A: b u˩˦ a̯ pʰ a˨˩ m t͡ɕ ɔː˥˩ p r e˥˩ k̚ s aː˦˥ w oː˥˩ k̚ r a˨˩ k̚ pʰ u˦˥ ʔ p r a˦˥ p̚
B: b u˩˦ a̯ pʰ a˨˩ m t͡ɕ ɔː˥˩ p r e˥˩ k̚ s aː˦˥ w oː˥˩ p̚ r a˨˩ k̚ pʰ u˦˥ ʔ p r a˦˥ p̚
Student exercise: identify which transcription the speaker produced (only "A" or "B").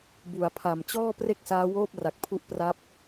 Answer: B